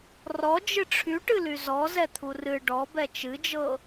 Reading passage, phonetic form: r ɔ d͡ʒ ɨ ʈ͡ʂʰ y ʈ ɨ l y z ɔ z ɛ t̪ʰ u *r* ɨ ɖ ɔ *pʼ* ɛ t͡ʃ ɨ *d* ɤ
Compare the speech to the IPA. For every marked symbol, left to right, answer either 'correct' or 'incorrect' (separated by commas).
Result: correct, incorrect, incorrect